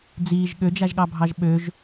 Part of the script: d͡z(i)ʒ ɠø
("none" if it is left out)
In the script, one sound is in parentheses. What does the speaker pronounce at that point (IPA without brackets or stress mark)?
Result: iː